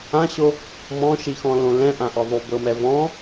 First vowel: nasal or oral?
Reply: nasal